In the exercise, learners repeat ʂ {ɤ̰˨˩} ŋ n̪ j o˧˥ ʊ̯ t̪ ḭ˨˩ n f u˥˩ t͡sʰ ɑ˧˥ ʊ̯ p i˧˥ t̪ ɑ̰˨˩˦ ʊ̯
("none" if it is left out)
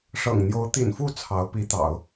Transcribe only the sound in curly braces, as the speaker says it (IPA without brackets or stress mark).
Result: ɤ̰˨˩